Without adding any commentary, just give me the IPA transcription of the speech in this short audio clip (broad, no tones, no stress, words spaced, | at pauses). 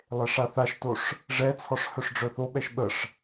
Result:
lˠeʂaθaʃtoʂ | ʐɛt͡sʰɔʂ hœʂɖ͡ʐœθoɓɛʃ ɓəʂ